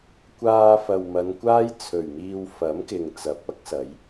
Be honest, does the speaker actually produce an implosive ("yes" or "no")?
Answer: no